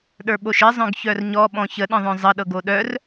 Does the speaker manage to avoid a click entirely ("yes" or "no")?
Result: yes